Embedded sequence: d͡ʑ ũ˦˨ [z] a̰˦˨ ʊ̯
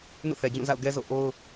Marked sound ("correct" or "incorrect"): correct